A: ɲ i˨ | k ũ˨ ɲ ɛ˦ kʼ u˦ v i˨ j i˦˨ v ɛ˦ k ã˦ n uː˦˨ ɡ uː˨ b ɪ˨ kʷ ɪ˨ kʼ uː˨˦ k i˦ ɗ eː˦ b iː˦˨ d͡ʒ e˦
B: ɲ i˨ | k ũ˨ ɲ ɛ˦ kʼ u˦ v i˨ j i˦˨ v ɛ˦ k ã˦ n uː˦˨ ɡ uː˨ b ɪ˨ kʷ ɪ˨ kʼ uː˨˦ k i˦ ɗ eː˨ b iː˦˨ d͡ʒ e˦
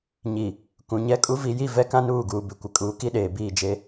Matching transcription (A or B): B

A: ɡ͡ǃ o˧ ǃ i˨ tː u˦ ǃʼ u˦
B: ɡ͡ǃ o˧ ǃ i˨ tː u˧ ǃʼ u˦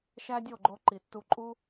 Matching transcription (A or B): B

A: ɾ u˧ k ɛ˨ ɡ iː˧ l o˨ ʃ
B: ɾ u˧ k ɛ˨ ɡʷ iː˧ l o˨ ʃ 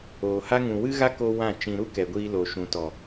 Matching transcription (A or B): B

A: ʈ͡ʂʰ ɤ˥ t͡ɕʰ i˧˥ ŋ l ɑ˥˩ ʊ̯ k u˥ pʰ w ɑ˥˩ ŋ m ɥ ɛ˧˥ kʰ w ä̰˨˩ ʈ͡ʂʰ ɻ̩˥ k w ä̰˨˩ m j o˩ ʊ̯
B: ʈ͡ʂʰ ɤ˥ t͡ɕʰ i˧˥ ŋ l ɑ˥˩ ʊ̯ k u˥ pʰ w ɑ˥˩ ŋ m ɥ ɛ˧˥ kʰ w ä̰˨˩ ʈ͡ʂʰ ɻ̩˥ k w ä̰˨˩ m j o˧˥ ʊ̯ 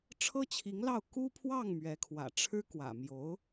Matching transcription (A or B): B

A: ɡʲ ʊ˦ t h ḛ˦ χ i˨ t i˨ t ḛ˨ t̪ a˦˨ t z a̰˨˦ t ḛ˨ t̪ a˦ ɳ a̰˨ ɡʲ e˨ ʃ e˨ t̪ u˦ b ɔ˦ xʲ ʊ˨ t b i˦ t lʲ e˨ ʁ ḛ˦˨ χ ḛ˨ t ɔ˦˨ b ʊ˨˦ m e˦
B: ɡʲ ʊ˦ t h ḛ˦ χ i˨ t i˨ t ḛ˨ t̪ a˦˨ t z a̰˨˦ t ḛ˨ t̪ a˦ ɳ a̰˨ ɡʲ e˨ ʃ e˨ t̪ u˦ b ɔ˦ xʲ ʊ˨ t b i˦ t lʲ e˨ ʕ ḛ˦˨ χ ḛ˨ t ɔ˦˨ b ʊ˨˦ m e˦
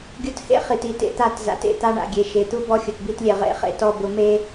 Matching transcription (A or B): A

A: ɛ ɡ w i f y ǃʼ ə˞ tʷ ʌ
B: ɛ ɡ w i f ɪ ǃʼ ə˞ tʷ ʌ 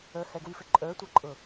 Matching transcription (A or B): B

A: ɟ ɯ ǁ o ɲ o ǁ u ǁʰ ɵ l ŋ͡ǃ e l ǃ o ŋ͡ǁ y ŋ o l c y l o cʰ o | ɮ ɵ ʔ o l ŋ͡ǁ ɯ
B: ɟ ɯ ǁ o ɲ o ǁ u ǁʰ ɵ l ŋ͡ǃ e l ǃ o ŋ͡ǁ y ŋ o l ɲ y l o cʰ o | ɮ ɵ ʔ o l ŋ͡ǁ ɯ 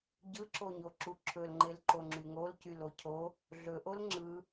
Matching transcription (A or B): A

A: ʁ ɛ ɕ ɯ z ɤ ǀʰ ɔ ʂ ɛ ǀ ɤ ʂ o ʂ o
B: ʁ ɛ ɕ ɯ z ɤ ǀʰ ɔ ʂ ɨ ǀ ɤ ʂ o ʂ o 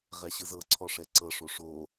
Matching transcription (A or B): A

